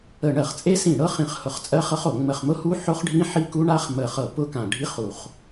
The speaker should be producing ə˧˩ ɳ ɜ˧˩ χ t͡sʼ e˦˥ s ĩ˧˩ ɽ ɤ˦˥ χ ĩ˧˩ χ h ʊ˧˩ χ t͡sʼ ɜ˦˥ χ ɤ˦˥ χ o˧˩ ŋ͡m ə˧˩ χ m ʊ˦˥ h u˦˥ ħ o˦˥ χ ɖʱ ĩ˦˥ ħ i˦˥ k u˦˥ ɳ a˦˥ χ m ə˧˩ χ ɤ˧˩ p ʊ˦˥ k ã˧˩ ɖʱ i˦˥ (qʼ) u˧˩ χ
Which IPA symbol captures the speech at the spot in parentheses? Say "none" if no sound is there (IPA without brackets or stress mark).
χ